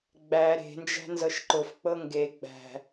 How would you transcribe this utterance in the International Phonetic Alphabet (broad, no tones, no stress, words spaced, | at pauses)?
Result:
ɡ͡bæ ɾe̤nd͡ʒæ̤nzɤʃ ǃʊfk͡pɤ ŋɡe ɡ͡bæ̤